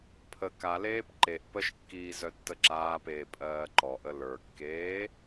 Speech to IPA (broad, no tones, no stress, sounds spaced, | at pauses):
pʰ ə k a l eː p ǃ e ʔ p ə ʃ kː iː z œ tː ə ǁ aː p eː pʼ ɜː ǃ ɔ ʔ ə l ə˞ kː eː